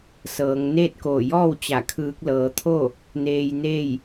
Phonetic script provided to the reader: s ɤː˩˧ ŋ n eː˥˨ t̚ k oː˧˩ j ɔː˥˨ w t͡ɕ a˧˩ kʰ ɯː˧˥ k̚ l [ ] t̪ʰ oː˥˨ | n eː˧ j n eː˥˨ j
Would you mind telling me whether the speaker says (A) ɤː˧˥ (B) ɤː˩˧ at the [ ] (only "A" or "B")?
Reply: A